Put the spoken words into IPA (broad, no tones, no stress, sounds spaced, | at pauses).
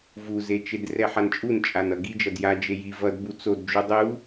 v u z e t͡ʃ e d r ɛ ħ a n t͡ʃʼ u n t͡ʃʼ a n ʌ ɡ i d͡ʒ ʌ d j a d͡ʒ e j i v ʌ d b u t͡s o d d͡ʒ u dˤ u